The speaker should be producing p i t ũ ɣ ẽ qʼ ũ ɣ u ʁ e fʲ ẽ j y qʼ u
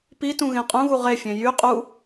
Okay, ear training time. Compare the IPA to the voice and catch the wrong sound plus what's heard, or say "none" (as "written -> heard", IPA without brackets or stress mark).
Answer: none